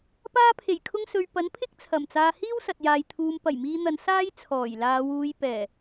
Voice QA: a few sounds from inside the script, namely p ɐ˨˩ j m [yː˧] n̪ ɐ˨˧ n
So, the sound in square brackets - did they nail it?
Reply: no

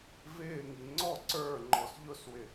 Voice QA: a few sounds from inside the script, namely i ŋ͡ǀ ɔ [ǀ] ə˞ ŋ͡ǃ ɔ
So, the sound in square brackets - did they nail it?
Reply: yes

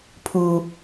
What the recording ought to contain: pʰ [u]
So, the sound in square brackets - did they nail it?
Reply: yes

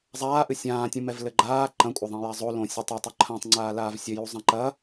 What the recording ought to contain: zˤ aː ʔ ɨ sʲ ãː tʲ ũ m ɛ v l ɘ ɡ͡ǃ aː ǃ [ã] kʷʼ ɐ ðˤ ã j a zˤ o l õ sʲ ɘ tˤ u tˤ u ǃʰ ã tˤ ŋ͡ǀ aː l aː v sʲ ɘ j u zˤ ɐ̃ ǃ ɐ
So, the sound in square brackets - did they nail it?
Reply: no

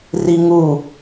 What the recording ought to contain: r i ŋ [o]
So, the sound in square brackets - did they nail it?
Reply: no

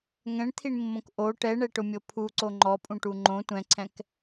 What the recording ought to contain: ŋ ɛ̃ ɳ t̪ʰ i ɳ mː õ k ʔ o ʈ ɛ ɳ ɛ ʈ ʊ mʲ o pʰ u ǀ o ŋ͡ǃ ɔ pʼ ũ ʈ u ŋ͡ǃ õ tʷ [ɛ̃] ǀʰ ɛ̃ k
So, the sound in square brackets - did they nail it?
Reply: yes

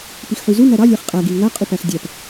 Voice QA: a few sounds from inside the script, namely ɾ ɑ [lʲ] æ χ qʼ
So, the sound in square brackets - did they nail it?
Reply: yes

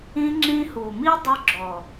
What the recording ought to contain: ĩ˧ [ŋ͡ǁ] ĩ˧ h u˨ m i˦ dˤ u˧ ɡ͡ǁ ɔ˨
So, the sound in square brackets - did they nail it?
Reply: yes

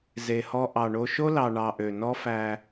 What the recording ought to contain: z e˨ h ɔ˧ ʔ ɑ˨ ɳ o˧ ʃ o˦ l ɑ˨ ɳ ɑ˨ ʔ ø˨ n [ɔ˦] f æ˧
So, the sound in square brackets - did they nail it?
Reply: yes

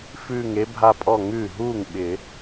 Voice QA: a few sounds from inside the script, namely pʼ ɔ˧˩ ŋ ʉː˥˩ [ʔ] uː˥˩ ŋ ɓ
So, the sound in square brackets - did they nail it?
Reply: no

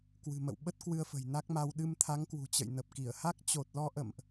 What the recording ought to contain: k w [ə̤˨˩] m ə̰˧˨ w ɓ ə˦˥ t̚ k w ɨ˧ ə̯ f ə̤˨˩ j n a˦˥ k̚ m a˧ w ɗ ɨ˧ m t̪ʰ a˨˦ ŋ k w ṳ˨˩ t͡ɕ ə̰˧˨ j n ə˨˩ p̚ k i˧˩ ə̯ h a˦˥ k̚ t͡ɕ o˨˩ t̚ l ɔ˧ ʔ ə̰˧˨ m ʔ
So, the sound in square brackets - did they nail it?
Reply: no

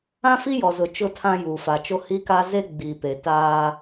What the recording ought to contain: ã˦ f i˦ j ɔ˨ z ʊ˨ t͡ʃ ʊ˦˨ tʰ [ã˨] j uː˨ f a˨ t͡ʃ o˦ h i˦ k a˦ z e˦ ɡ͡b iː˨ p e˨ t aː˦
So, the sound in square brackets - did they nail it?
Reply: no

